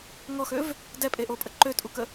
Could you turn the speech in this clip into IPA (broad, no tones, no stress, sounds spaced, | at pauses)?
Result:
ŋ ɔ x ø v | d ɛ pʼ e ʔ o pʼ ə ǃ ø tʼ u k ə